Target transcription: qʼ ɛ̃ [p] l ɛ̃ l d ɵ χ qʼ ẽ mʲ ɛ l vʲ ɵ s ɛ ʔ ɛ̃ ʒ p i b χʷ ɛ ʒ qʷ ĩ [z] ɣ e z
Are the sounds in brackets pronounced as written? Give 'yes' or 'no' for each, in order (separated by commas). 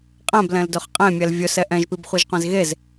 no, yes